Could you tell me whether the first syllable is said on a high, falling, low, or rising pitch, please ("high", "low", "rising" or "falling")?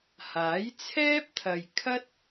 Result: rising